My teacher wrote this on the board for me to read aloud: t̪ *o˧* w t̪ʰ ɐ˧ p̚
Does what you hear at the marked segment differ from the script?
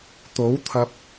yes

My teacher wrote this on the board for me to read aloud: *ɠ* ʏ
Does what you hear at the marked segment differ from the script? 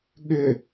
no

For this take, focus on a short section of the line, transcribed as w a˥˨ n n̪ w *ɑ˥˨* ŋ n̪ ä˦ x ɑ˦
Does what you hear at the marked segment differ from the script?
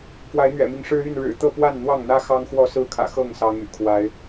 no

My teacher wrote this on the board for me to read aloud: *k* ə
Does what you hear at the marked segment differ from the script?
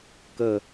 no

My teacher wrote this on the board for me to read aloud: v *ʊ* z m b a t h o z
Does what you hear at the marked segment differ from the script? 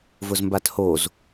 no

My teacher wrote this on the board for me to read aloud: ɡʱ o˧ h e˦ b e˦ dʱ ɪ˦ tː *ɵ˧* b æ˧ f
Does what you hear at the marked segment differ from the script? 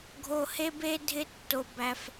yes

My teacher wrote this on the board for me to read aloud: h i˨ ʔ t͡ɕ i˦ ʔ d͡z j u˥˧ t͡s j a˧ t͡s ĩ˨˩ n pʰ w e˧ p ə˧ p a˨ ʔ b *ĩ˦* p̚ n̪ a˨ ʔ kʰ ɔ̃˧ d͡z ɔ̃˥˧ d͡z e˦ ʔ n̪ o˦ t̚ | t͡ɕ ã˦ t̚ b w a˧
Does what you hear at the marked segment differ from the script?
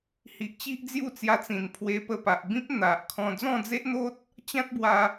no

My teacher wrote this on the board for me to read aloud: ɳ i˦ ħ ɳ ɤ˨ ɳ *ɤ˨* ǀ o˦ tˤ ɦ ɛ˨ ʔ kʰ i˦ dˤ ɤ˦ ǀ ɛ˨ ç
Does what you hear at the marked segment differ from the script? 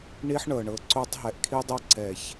no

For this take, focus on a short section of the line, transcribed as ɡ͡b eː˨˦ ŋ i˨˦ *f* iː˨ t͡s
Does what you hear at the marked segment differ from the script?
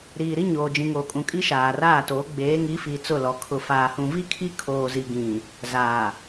no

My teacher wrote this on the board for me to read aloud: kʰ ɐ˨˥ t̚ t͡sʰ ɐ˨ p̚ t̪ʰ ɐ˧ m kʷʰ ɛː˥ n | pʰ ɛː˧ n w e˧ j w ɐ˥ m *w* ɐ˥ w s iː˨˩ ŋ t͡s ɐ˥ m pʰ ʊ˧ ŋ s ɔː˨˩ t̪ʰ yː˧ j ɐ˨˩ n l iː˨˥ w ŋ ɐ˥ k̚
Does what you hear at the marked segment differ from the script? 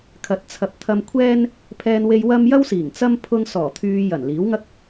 yes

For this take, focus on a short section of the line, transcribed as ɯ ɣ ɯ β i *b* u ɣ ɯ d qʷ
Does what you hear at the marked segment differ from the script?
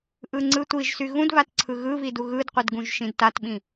yes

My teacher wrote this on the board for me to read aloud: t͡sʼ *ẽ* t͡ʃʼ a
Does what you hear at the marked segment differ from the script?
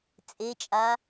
yes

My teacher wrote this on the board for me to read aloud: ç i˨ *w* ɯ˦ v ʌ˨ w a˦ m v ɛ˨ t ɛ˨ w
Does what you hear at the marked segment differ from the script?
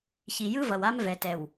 yes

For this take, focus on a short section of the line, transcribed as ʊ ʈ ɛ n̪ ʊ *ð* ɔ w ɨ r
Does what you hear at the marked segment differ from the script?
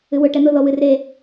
no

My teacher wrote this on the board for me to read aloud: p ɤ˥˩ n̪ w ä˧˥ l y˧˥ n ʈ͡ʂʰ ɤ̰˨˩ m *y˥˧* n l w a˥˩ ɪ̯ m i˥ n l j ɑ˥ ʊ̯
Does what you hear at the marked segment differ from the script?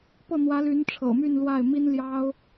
no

